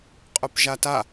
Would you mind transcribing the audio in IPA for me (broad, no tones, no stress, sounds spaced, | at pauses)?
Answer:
qʼ œ p ʒ a t a